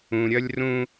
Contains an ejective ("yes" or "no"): no